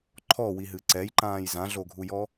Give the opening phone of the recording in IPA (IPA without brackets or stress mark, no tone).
ǃʰ